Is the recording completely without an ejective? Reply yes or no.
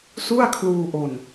yes